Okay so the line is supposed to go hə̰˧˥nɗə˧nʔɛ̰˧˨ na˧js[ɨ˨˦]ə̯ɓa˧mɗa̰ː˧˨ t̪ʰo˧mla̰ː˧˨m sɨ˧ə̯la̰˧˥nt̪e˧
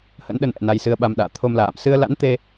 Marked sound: incorrect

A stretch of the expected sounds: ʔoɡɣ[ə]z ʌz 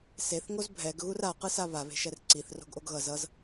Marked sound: incorrect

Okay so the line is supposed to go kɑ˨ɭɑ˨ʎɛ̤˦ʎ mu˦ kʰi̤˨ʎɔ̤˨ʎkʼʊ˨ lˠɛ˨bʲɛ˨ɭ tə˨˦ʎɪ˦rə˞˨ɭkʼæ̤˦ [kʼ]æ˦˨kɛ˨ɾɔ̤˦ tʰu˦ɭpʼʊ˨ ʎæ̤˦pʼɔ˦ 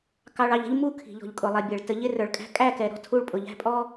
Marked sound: correct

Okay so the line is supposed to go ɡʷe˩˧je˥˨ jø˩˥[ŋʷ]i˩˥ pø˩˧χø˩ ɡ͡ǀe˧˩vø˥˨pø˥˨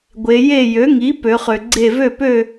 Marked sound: incorrect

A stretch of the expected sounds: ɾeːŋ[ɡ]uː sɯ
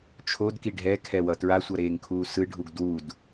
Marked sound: incorrect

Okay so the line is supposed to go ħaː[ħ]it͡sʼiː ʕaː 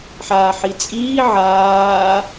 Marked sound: correct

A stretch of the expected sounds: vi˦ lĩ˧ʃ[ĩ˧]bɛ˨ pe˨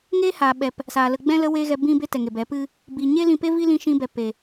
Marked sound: correct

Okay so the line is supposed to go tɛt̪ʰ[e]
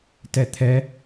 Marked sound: incorrect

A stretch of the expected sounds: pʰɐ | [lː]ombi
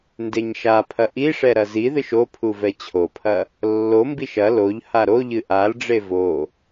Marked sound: correct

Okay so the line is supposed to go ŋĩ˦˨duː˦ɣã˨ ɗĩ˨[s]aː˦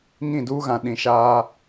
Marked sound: incorrect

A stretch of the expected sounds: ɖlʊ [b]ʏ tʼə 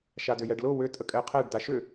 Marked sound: incorrect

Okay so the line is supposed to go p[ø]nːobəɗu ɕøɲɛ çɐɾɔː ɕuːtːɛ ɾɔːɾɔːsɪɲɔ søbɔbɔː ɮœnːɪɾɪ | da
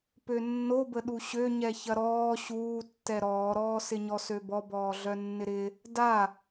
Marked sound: correct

